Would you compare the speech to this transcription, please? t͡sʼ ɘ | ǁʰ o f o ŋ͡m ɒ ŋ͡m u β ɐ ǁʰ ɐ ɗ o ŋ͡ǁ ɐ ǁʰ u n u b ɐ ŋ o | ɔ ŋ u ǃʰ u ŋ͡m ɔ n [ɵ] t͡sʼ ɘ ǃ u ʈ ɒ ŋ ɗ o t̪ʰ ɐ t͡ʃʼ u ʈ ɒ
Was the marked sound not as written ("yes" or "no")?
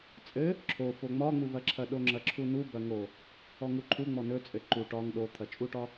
no